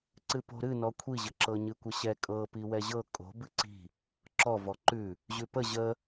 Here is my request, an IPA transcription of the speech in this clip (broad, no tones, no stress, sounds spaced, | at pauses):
ǀ ɨ p o̤ ɾ ɨ n ɔ kʷʰ i ʑ ə ǁ ɤ ɲ ɨ kʷ ə ɕ ɛ kʼ ɤ p i w ɛ ʑ ɤ kʼ o̤ b ɨ ǀ i̤ | ǁ ɔ v ɔ ǃ ʉ | ʑ ʉ p ə ʑ ə